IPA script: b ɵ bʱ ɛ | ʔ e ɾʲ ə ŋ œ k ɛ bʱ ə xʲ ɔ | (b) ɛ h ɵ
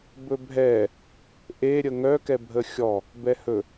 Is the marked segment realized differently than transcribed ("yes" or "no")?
no